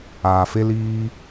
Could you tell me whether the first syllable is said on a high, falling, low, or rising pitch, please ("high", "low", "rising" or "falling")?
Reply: low